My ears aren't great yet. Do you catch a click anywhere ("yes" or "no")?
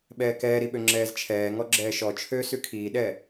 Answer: yes